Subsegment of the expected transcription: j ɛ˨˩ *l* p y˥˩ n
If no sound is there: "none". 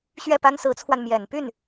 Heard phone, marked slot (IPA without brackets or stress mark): n